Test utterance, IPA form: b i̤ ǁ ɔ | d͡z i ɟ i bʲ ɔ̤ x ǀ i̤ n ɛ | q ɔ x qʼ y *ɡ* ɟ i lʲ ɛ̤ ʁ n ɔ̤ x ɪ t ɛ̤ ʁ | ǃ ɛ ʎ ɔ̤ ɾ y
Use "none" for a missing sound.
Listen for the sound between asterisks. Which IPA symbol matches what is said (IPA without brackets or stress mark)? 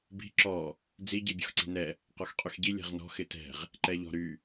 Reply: x